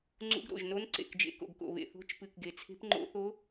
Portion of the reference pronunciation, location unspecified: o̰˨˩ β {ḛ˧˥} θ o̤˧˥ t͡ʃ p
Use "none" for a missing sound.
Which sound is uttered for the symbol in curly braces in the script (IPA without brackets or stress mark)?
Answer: ḛ˨˩